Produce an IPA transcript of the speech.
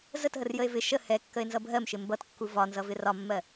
z ə t ɦ ə r j ə e̯ v ɪ ʃ ə h ɛ kː ə e̯ n z ʌ bʱ ɜ m ʃ ɪ m b ʌ t kː u v ɒ n z ʌ v ɪ r ɒ mː ɜ

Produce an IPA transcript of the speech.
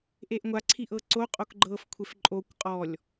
ʔ e ʔ ŋʷ a ǀʰ i ʔ ɤ ǀ o qʼ o k ɡ͡ǃ ɤ f kʷʰ e f ǃʼ o kʷ qʼ ɔ lʲ

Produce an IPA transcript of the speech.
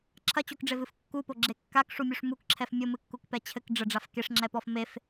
ǁʰ ɐ t͡ɕ o k ɖ͡ʐ e v ɨ f kː u p o ɡ͡ǁ e kː a k ʂ u mʲ u ʂ m u k ǁʰ ɛ f mʲ o m ɨ kː u k p ɛ t͡ɕʰ ɘ k ɖ͡ʐ ɘ ɖ͡ʐ a f k e ʂ ŋ͡ǁ ɛ p ɔ f m e f

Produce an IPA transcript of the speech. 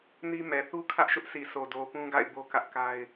n i˦ m ɛ˨ θ u˦ kʰ ä˦ ʔ ʃ ʊ˦ ʔ s i˨ sʰ o˨ d o˨ p ũ˦ ɡ a̰˦˨ ɪ̯ b o˦ k ä˦ ʔ k a˦ ɪ̯

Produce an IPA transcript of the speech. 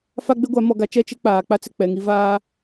f a˦ ɡ͡b e˦ ɡʷ a˨˦ m ɔ˨ ɡ a˨ t͡ʃ ɛ˦˨ t͡ʃ e˦ k͡p aː˨ k͡p a˦ t͡s ɪ˨ k͡p ɛ˨ ŋ i˦ v aː˦

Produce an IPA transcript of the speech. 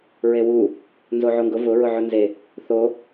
ɹ e w u | n z o ʕ o ŋ ɡ ʊ v ʊ ɹ ʊ ʕ ʊ n z e | θ o

